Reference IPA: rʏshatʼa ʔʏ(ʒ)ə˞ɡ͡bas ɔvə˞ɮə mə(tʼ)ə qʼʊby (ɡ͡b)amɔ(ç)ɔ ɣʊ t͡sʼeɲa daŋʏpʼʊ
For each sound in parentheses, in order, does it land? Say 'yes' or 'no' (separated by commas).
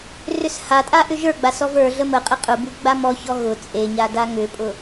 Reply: yes, no, yes, yes